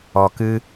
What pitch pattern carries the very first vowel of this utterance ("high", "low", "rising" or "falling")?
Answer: low